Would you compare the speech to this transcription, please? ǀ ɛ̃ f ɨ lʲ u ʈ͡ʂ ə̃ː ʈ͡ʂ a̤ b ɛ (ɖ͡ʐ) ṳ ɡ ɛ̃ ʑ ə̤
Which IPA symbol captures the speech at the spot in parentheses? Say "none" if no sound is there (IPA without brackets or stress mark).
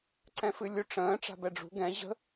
ɖ͡ʐ